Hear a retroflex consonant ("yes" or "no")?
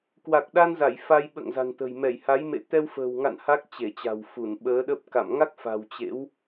no